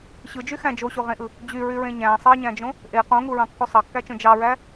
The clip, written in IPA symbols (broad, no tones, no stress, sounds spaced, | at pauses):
ɕ ɯ d͡ʒ y x æ̃ d͡ʒ o ɕ o ʁ ẽ ʔ ɯ | d͡ʑ y ɹ y ɹ ẽ ɲ æ̃ sˤ ɑ ɲ æ̃ d͡ʒ õ | ʔ e q õ ŋ u ɹ ɑ̃ kː o sˤ ɑ kː æ t͡ʃ õ d͡ʒ ɑ ɹ æ